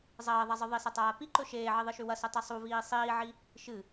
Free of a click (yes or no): no